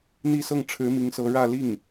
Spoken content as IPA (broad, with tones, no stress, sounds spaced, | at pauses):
n̪ i˥˧ s ɤ˥˩ ŋ ʈ͡ʂʰ ɻ̩˧˥ m i˧˥ ŋ s ɤ˧˥ ɻ ä˥˧ l i˥˩ ŋ